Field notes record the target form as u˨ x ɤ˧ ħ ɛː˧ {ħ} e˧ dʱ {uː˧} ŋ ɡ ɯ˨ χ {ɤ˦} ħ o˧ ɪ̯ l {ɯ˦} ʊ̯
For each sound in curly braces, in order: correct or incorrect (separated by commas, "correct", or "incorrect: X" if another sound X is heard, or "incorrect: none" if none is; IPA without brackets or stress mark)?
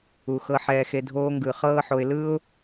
incorrect: x, incorrect: oː˧, incorrect: ɤː˦, correct